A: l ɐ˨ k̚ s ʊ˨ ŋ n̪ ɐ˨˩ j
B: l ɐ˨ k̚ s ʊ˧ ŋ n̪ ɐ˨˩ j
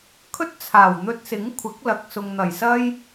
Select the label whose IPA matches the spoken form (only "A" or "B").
A